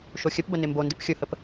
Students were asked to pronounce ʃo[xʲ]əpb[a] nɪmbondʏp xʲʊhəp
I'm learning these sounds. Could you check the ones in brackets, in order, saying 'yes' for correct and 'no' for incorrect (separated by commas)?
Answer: yes, no